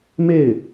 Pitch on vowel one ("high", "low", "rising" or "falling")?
falling